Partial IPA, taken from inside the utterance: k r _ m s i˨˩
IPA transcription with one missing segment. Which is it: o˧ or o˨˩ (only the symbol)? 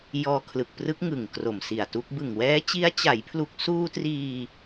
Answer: o˨˩